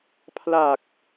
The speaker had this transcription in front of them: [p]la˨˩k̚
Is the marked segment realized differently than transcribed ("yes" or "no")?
yes